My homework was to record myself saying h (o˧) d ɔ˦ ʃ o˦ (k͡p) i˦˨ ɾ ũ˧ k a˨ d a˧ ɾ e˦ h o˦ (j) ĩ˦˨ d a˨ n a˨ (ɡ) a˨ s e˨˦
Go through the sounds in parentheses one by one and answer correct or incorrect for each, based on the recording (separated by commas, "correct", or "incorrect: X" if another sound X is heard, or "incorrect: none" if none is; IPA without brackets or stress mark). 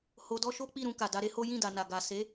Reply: correct, correct, correct, correct